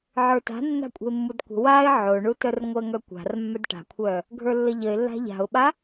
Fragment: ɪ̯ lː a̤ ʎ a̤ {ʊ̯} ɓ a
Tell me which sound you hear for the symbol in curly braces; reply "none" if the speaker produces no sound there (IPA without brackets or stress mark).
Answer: ʊ̯